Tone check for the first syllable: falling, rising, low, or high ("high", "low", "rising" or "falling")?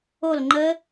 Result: falling